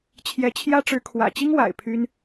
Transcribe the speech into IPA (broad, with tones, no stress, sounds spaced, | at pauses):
t͡ɕʰ j ɛ˧˥ t͡ɕʰ j ä˥ ʈ͡ʂ ɻ̩˧˥ kʰ w ä̰˨˩ t͡ɕ i˥ ŋ w a̰˨˩ ɪ̯ pʰ y˥ n